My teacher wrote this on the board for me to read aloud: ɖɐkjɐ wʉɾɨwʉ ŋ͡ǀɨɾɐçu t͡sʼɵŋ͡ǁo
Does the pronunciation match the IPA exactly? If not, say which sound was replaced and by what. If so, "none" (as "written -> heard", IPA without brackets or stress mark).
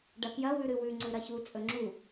o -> u